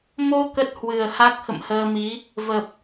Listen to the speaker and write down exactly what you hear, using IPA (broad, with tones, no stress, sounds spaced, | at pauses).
m o˧ k ə˦˥ t̚ h w ɨ˨˩ ə̯ h a˦˥ k̚ x ə̰˧˨ m h əː˧ m i˨˦ | v ə˨˩ p̚